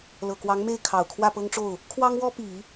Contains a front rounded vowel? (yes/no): no